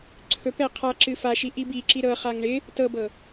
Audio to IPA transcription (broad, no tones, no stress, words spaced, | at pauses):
ǀʰɵpɛ qʰa ǁɨfaʃi ʔibi ǁiɾɤχaŋ ɳɪ | tɤbɤ